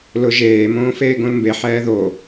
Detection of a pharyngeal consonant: present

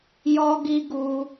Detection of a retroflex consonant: absent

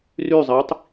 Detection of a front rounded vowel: present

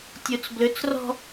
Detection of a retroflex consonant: absent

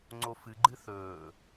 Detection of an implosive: absent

